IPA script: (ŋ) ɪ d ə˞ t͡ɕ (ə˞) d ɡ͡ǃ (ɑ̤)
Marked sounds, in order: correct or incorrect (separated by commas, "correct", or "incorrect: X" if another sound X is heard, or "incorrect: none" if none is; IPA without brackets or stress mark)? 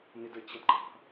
incorrect: n, incorrect: ʌ, correct